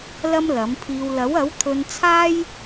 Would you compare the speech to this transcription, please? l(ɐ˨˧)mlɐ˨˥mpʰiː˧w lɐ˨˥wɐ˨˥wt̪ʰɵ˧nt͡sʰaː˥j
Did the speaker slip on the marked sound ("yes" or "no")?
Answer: yes